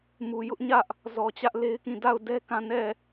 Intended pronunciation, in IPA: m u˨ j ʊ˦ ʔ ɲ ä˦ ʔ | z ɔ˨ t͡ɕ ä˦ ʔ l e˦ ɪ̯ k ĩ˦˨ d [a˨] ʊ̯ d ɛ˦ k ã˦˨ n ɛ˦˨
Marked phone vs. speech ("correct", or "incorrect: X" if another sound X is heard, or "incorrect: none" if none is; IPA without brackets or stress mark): incorrect: a˦˨